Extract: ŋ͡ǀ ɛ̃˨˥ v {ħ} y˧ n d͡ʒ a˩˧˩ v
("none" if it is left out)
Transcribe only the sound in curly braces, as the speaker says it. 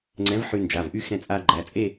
ħ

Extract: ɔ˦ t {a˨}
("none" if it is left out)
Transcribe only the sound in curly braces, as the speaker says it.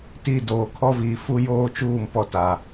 a˨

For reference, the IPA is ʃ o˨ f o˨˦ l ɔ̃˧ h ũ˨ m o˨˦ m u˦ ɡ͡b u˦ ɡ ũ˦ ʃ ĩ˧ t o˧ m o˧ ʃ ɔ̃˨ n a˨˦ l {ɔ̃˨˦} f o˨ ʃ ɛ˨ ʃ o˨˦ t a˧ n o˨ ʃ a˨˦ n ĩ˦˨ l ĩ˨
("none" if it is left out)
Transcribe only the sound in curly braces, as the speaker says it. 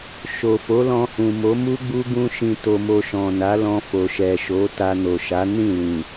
ɔ̃˧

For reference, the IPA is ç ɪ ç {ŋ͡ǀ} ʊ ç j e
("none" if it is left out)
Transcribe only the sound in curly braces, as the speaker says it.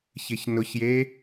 n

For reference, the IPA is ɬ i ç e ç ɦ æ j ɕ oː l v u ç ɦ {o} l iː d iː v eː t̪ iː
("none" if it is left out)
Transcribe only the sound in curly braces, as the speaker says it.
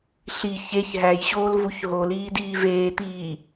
o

